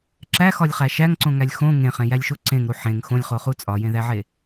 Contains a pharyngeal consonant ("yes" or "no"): yes